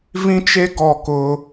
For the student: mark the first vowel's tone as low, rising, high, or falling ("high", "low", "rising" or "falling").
high